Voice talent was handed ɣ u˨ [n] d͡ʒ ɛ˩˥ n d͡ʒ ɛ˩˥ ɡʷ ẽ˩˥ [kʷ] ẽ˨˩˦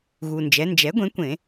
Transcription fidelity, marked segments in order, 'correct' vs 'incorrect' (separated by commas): correct, correct